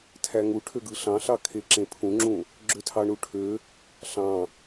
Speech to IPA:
tʰæŋu ʈʰøɡɯɬɑ̃ɬɑ kʰeǁẽpʰũŋ͡ǁũ | ɡ͡ǁøtʰɑɳuʈʰø | ɬɑ̃

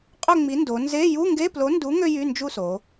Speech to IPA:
qʼø˥˨ŋ͡mi˨˥ ndo˩˧ nze˧˥˧ ju˧˥˧ŋɡe˧˥˧plo˨˥ndu˨˥ ŋø˥jy˧˥˧nd͡ʒu˥˨so˩˧

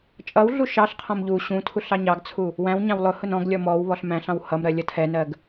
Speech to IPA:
t͡ʃʼʌwɮu ʃɑɬqʰɔ̃m ʎu ɕũ tʰuɬɑɲɑɡt͡sʰu | wæ̃wɲɑ̃w lˠʊhʊn ɔ̃ɡlʲɔ mɔw βɔɬmæ̃ɬɑ̃w hʌmɾɜ lʲʌtʰɛnɜɡ

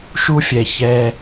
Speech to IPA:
ʃu˥fʲɛ˧ çɛ˧

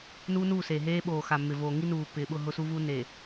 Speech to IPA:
nuː˦nuː˦˨ seː˨ɦeː˦ ɓoː˨ xa˨mːɪ˨voː˨ ŋi˦nuː˨pːɪː˨ɓʊ˦˨ ɦʊ˦suː˦vu˦ ne˨

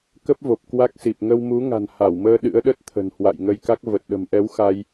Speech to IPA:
kə˦˥p̚vo˨˩p̚ kwa˦˥k̚si˨˩p̚ ŋə˧wmu˨˦ŋa̤˨˩n ha˧˩wməː˧ ɗɨ̰˧˥ə̯ɗə˦˥t̚t̪ʰə̤˨˩n hwa̰˧˨j ŋə˧jka˦˥k̚ və˨˩t̚ɗə̤˨˩mʔɛ˨˦w xa˧j

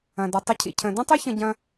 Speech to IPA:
ɐ̃˩dɔ˩ tˤə˧cʰḭ˩ cʰə̃˩də̃˥tˤʊ˥ çə̃˧ɟɐ̃˧

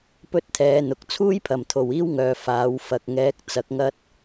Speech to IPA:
pɵ˥t̚t̪ʰɛː˨˧n̪ʊ˨k̚ t͡sʰuː˥jpʰɐ˨˩mt̪ʰo˨˩w iː˥wŋœː˨ faː˨˥wfɐ˧k̚ ŋɛː˨˥k̚ t͡sɐ˨˥k̚ŋɐ˥t̚

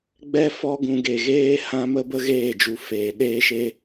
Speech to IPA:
ɡ͡bɛ˦ fɔ˦ ɡũ˧ ɡe˨ ɣeː˦hã˦ mə˦bə˦ɣeː˦˨d͡ʒu˨ feː˨ɗeː˦ ʃe˦

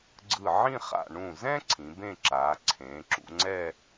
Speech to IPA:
ɡ͡ǀɯ˧˩ʕĩ˥˧χa̰˧˩ ɳũ˧˩zɛ̃˥ ǀʰĩ˩˧bẽ˥˧ ǁaː˩˧ ǀʰẽː˩˧ǁṵ˧ŋ͡ǀɛ˥˧

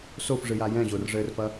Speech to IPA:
sofʐɨja jɛ̃ʑorʐɘːrfɐ

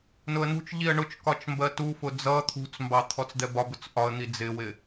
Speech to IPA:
nʊə̯nṳt͡ʃʎiə̯ ɳʊt͡ʃ kɒt͡ʃmbɜtufʊ d͡zʌ t̪ʰṳt͡smbɑ t̪ʰɔt͡sd̪ɛbɒbʊt͡s ʔɒə̯ n̪id͡zɪwɪ

